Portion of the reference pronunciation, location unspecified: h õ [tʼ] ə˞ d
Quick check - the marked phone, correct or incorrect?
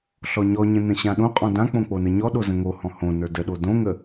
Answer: incorrect